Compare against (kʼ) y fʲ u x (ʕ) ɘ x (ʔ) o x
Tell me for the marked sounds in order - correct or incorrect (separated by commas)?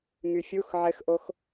incorrect, correct, correct